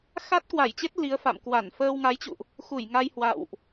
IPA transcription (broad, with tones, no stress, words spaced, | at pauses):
xa˦˥t̚kwa˧˩jt͡ɕe˦˥t̚ li˨˦ə̯fa̰˧˨m kwa˧˩nfəː˧wŋa˨˦jt͡ɕṵ˧˨ʔ | xu˧˩jŋa˧j hwa̰˧˨wʔ